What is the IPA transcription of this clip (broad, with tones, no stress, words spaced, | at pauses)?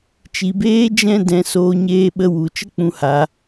t͡ʃi˨beː˧ d͡ʒɛ̃˦ dɛ̃˧ soː˧ɲeː˧ɓə˧ wu˨ t͡ʃə˦k͡pũ˧ha˧